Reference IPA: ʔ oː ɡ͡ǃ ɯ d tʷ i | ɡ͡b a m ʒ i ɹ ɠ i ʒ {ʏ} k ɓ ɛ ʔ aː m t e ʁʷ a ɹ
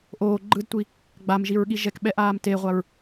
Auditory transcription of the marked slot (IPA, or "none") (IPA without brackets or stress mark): ɛ